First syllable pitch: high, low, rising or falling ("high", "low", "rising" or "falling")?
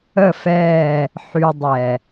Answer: falling